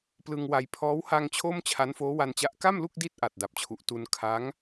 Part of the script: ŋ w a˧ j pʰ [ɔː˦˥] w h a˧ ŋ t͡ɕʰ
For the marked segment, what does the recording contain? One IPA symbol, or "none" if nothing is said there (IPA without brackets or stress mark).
ɔː˦˥